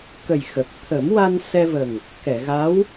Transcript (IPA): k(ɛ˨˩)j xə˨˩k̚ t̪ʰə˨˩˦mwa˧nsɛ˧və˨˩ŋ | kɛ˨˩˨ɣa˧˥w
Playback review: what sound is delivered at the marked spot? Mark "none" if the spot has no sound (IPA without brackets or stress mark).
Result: ə˨˩